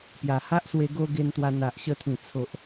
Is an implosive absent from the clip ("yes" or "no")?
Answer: yes